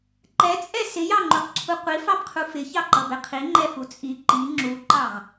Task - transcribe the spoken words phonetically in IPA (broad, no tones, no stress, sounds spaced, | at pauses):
ǃ ɛ t͡sʼ ɛ s ɪ j ɑ ŋ͡ǃ u q ǀʰ u qʷ i f ɑ b qʰ u f ɪ ç ɑ ǃ ʌ b ɛ qʰ i ŋ͡ǃ ɛ f u t͡sʼ i ǃ i ŋ͡ǁ u ǃ ɑ ʁ